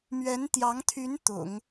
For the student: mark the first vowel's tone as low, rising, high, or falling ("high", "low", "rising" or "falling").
rising